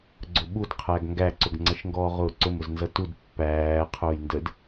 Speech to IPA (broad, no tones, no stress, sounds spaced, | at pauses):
ɡ͡ǀ ʊ ɓ u d qʰ æ ɡ ŋ ɡ æ ǀ ʊ ɡ ŋ͡ǀ ʌ ʃ ŋ ɡ ɔː ʁ ʊː ǀ ʊ m ʊ z n z ʌ t u d pː æː qʰ ʊː j n d ə d